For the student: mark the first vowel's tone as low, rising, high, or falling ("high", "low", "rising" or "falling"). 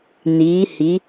rising